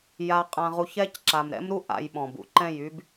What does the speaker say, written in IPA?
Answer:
j a˧ qʼ ã˧ ʁ u˧ ç ɛ˦ c ǁ a˨ m ɾ ɛ̰˦ m ɾ u˦ ʔ a̰˧ j ɓ ɔ̃˨ b ṵ˨ ǃ ɛ̃˦˨ j y˦ b

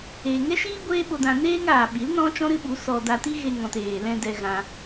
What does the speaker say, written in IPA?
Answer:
eː˨ ŋ ɛ˦ ʃ iː˦ ɡʷ eː˦ ɓ o˧ d ã˧ n eː˦ ŋ aː˨ ɓ i˨˦ l n ɔ̃˦ t͡ʃ ɔ̃˦ ɾ ɨ˦ ɓ u˨˦ s ɔ˧ d a˧ t i˦ ɣ e˧ ŋ ɔ̃˨ t eː˨ l ɛ̃˧ d ɛ˧ ɣ ã˧

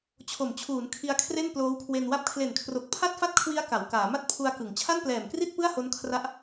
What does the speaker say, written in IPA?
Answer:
t͡ɕʰ o˩˦ m t͡ɕʰ uː˩˦ n kʰ i˧ a̯ kʰ r e˥˩ n p l oː˦˥ w kʰ w e˧ n w a˦˥ p̚ kʰ l e˨˩ n kʰ r o˨˩ k̚ pʰ a˥˩ t̚ f a˥˩ t̚ kʰ w i˦˥ a̯ k a˩˦ w k aː˩˦ m a˥˩ t̚ pʰ u˧ a̯ k ɯ˩˦ ŋ t͡ɕʰ a˥˩ n p l ɛː˨˩ m k r i˥˩ t̚ p ɯ˥˩ a̯ h o˦˥ n kʰ r a˦˥ ʔ

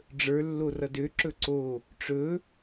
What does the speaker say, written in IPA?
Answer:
ɖ͡ʐ ə˞ lː o r ʌ d ø ǁ ɵ ǀ o | ʈ͡ʂ ɵ

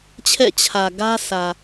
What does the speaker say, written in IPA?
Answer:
t͡ɕʰ ɛ̰˦˨ t͡ɕʰ ä˨ ɡ ä˦ sʰ ä˨

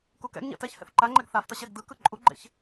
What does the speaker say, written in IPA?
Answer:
k u k ɛ̰ ɡ ɲ ɛ̰ t ɛ ç h ɛ̰ θ ǃ a ŋ͡ǃ ɛ ɡ θ a f t ʌ ɕ ɛ ɡ d ɯ k ɯ ǃʼ u ɡ͡ǃ ḛ ç

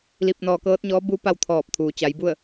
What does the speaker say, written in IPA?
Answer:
l i˧ p̚ n ɔː˧ k ɤː˧˥ t̚ ɲ ɔː˧˥ b u˧˥ p a˥˨ w t̪ʰ ɔː˧˩ p̚ t̪ʰ uː˩ t͡ɕ a˩˧ j b u˥˨ ə̯

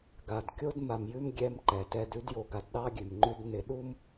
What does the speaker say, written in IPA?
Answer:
ɡ a˨ d kʲ o˦ d m a˨ m j ʉ˦ m ɡʲ ɛ˦ m ǃ ɛ˨ t ɛ˦ d ʉ˦ d j o˨ ɡ a˨ d ɗ ɑ˦ ɡʲ ʉ˨ m ŋ͡ǃ ʉ˦ d n ɪ˨ ɗ u˦ m

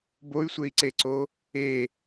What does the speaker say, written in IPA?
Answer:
b o y̯ sʷ e i̯ ǀ e ǀ o | e

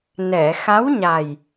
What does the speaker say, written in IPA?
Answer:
n ɛ˨˩˨ x a˧˥ w ɲ a˨˩ j

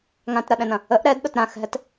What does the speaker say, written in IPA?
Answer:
ŋ ã t ɾ ɐ ɗ ɛ̃ n ɐ̃ | ə ʔ ɾ ɛ d ɗ ɐ t ɾ ã x ɦ ɛ t

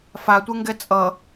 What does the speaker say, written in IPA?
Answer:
f a tʷ e ŋ ɡ ɛ t͡sʼ ʌ

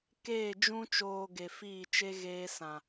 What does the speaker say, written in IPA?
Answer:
k eː˦˨ d͡ʒ ũ˧ t͡ʃ oː˨ ɡ e˨ f iː˦˨ t͡ʃ e˦ ɣ eː˧ s ã˨

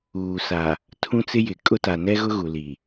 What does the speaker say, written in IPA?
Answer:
uː˨ s a˨ | tʰ ũ˦ t͡s ɪ˦ j ɪ˨ kʼ ʊ˦ t a˨ n ɛ˦ ɣ ʊ˦ ɣ u˨ l i˨

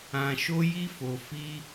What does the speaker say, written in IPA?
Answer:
ã˧ ʃ o˦ j i˦ f o˧ f i˦

